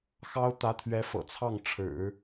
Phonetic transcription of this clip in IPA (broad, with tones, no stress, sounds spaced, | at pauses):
x ɑ˥ ʊ̯ t̪ ä˧˥ t̪ʰ ɥ ɛ˧˥ f ɤ̰˨˩ t͡sʰ ɑ˥˩ ŋ ʈ͡ʂʰ ɻ̩˨˩˦